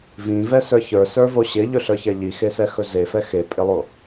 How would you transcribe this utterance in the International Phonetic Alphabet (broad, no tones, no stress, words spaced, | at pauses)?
vĩvɛsə˞ çə˞sə˞vo ɕɪʎɵɬə˞çɛ ʎixesɛxɵ zefɛ xepʼɪlˠo